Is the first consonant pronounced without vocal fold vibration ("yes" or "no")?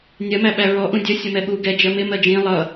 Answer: no